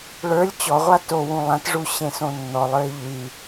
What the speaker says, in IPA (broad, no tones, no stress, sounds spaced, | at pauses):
ɭ ə˞ lʲ t͡ɕ ɔ ʁʷ a t o w ũ lˠ ã t ʐ u ɕ ẽ s õ nː ɔ lˠ ə˞ e̯ ʎ y